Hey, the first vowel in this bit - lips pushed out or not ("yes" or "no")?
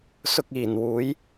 yes